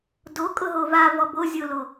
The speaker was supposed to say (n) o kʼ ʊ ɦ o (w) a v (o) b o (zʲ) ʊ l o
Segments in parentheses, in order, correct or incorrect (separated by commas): incorrect, incorrect, incorrect, correct